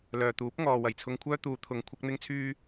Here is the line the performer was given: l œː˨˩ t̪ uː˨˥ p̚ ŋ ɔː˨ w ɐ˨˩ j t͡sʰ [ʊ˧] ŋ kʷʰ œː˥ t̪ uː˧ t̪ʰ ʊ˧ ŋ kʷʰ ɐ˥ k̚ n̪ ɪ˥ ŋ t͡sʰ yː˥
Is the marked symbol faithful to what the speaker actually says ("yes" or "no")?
yes